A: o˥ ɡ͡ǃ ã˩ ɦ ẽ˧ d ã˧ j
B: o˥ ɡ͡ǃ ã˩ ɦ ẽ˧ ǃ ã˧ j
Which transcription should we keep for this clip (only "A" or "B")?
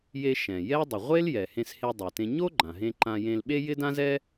B